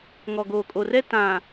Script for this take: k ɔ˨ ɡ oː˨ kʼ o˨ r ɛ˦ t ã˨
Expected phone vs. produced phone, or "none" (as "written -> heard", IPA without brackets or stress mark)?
k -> ŋ